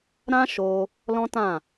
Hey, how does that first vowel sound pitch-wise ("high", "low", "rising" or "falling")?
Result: high